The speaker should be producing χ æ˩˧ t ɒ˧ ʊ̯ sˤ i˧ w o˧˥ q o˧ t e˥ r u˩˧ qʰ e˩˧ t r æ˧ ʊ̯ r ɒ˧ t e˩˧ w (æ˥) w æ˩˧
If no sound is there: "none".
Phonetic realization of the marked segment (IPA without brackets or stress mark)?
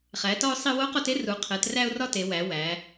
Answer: æ˩˧